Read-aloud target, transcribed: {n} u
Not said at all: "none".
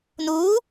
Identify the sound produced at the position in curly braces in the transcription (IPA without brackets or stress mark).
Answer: n